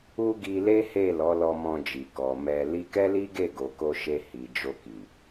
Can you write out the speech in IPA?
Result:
u˦ɡi˧le˦he˦˨ lɔ˨˦lɔ˧mɔ̃˧d͡ʒi˨ kɔ˨mɛ˧ li˧kɛ˦li˦ɡe˦˨ ɡo˨ko˧ʃe˧ hi˨ d͡ʒo˧ki˨

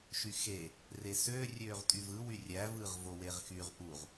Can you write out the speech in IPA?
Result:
ʃyxe | resøːrʲøːʁ tʼyvɯwy rʲævɯːʁ voweʁxyʁ ʔuʁ

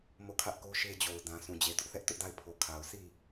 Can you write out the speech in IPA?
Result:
mo˦˨kʰä˦ʔ ko˦ʃe˦ d͡ʑo˨ʊ̯dã˨ sũ˨d͡ʑe˨dʊ˦ʔ θɛ˦ʔtʊ˦ʔda˦˨ɪ̯ pʰo˨kʰa˨ʊ̯ si˦˨

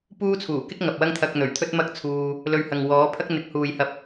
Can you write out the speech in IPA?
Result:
puː˥t͡sʰuː˨˩kɪ˥k̚ ŋɐ˨p̚wɐ˥ŋt̪ʰɐ˧k̚n̪ɵ˨˩ɥ t̪ʰɵ˥t̚mɐ˥k̚t͡sʰuː˧ | lɵ˧ɥhɐ˨ŋ wɔː˨˥pʰɐ˥k̚n̪ɪ˨˥k̚ huː˨jhɐ˧p̚

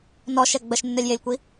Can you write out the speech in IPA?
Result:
nɔʃɛ ɡ͡bəʃnːœlʲjelʲkʷi

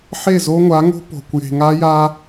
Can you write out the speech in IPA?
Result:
ħe˦˨zo˦ŋʷa˨˦ŋo̤˦ po̤˨kʷ je̤˨ŋa˦ja˦

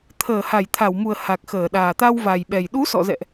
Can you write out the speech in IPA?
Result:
t̪ʰəː˧˩ha˧˩jt̪ʰa˧˩wmu˨˩ə̯ ha˨˩k̚xəː˧˩ɗaː˨˩ t̪a˧wva˨˩jɓɛ˨˩j ɗu˨˦sɔ̰˧˨zɛ̰˧˨ʔ

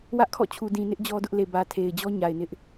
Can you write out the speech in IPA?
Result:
wä˦ʔkʰɔ̰˦˨t͡ɕʰu˨ dĩ˨nɪ˦ʔ d͡ʑɔ˦dʊ˦ʔle˨ bä˨tʰe˨ɪ̯d͡ʑɔ˦ ɲa˨ɪ̯nɪ˦ʔ

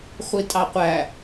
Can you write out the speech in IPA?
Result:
χʷitʼɑqʷæ

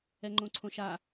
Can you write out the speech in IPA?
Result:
ɛŋ͡ǃõǀʰõʃa

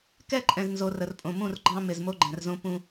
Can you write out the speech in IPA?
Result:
kɛ˦ǃʼɛ̃˨znzo˨ rə˨rpʼõ˨mũ˦˨rɡ͡ǃɑ̃˦ mɪ˨zmo˦ɡ͡ǃɛ̃˨rzõ˦ pũ˦

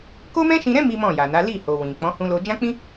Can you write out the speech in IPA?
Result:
ko˦mɛ̃˦ʃĩ˧ɾɛ̃˦ mi˦mɔ̃˦˨ja˨na˨˦ li˦˨ho˨ wĩ˨k͡pɔ̃˨˦ hũ˧lo˧ d͡ʒã˦k͡pĩ˦

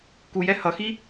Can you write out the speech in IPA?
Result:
kujɛ hʌxi

